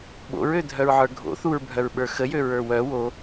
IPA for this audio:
ɓ o̰ ɹ ø dʱ œ ɹ ʕ ə˞ ɡʱ o̰ θ u ɹ bʱ œ ɹ ɓ ə˞ x ə j ø ɹ ə˞ w œ w o

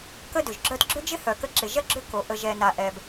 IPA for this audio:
k ə˦ d ʏ˩ ʒ ɡ͡ǁ œ˦ t ɡ͡ǁ ʏ˥ d͡ʒ ɪ˥ h œ˨ k ə˦ ǁ ɪ˨ ʒ ɐ˥ ɡ͡ǁ ʏ˦ k o˩ ʔ ə˨ ʒ ɛ˨ n a˨ ʔ ɛ˨ b

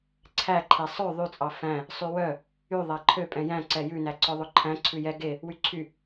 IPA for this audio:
ǀʰ æ ǃʰ e sˤ ø ðˤ y t͡sʼ ɑ f æ̃ | sˤ y w œ | y ðˤ æ ǃʰ ø pʼ ɛ̃ j æ̃ ǀ ɛ j ʉ n æ ǀ œ ðˤ ɵ ǃʰ æ̃ ǀʰ ʉ j ɛ ɡ e | w y ǀʰ y

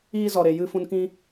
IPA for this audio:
iː˧ z ɔ˨ ɾ e˨ j ɨ˧ f ũ˨ n k ĩ˧

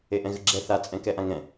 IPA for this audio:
e ʔ ɛ̃ ɣ ɘ ɡ͡ǁ ɛ θ a t͡sʼ ɛ̃ k ɛ ʔ ã ŋ ɛ̃

